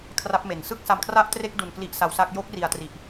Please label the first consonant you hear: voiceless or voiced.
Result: voiceless